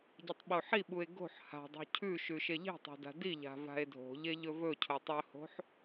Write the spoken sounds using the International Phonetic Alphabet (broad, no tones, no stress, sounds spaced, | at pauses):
ɟ ɨ tˤ ɓ o ħ i ɓ u e̯ ɡ o̤ ħ h a̤ dˤ o̤ cʰ ʉ ʃ ʉ ʃ e ʎ e̤ tˤ a̤ d a̤ d i ʎ a̤ v a̤ e̯ dʱ o̤ ʎ e ʎ ɵ v ɵ cʰ o tˤ ɵ h o̤ ħ